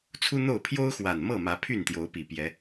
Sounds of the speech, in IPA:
t͡sʰ u˦ n̪ o˥˨ ʊ̯ pʰ j o˦ ʊ̯ x w a˨˩ n m ɤ˥˨ m ä˨˦ pʰ y˥˨ n t̪ j o˨˦ ʊ̯ p i˨˩ p j ɛ˨˦

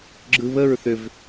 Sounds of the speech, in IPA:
ɡ͡ǁ ɯ β ə ɹ θ ʏ v

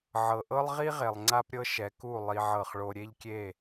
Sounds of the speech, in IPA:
ʕ ɤ˨ ʔ ɤ˦ lˠ ʁ i˦ ʁ e˨ lˠ ŋ͡ǀ a˦ p ɾʲ ɤ˦ ʃ ɛ˨˦ k u˦˨ lˠ i˧ ʕ ɤ˦˨ χ ɭ o˦ ɾʲ e˦ ʎ kʲ e˦˨

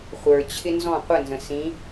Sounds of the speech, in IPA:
χʷ ə˞ t͡ɕʰ ɪ n z ɔ̃ qʷ ə n z ə̃ s ĩ

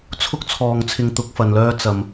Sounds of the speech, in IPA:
t͡sʰ ʊ˥ k̚ t͡sʰ ɔː˨ ŋ t͡sʰ ɪ˧ ŋ t̪ ʊ˨˥ k̚ f ɐ˨ n l œː˧ t͡s ɐ˨ m

